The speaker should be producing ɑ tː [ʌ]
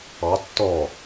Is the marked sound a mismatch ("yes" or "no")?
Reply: yes